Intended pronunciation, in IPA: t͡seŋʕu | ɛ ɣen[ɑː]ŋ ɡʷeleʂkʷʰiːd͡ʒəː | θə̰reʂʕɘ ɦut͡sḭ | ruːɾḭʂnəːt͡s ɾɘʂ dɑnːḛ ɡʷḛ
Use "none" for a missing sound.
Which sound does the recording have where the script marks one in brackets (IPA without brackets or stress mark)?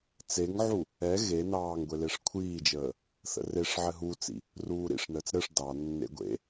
ɑː